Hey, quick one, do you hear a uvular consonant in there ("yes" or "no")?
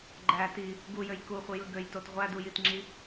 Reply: yes